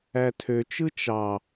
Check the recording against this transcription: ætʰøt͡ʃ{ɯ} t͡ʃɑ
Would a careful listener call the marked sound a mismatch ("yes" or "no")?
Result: no